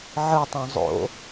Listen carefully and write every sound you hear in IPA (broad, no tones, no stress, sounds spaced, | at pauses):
ʕ ɯ tˤ õ zˤ o̰